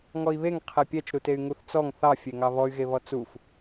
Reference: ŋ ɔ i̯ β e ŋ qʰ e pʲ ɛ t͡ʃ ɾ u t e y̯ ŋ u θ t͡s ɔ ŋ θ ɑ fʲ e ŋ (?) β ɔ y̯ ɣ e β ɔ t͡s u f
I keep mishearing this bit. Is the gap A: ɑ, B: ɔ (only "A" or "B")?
A